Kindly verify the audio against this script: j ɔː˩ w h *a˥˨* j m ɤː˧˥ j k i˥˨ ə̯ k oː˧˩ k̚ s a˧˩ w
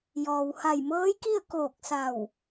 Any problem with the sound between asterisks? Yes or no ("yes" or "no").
yes